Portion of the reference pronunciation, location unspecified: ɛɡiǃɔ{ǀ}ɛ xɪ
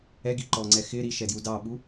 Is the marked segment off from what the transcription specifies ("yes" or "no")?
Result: yes